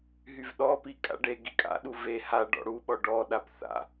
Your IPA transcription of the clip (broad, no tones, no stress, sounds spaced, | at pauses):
ɦ y v ɗ ɔ p i kʼ a̰ ɖ e ɡ i kʼ a̰ ɗ u v e h a ɖ ɔ̰ ɽ u ɓ ɔ ɖ ɔ ɗ a p θ a̰